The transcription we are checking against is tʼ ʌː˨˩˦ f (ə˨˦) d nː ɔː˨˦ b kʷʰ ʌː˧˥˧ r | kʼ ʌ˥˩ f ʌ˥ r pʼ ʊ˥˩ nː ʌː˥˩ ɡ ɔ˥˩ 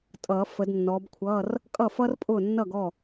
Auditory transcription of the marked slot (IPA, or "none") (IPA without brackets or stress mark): ə˨˦